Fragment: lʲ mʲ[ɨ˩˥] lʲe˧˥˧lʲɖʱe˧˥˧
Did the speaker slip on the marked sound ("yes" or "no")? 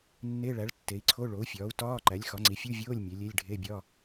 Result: yes